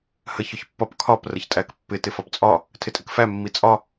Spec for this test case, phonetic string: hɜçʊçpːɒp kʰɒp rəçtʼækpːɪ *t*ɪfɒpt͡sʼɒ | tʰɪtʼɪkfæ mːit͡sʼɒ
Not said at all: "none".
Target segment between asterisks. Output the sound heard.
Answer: t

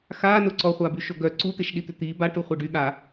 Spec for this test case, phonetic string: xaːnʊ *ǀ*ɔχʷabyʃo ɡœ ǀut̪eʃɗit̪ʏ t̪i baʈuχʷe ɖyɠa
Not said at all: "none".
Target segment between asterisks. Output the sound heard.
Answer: ǀ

